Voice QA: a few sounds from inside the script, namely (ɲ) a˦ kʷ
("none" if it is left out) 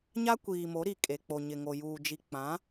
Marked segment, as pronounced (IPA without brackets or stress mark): ɲ